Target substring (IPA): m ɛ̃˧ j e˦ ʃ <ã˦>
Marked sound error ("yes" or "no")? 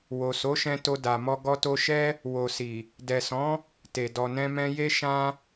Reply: no